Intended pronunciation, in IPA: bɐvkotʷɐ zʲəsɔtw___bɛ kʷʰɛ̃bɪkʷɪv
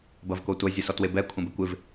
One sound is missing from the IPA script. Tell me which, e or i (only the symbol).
e